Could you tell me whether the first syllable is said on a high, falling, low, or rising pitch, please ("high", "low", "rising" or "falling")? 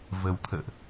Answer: low